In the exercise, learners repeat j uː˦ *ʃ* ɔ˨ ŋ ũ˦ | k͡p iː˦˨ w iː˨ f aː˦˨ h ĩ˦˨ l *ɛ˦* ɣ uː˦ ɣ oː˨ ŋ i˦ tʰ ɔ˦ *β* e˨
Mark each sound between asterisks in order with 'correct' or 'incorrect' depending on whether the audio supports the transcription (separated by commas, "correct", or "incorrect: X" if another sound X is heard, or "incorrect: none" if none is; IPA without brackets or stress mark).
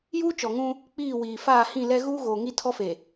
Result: incorrect: t͡ʃ, correct, incorrect: f